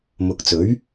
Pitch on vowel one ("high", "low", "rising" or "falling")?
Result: low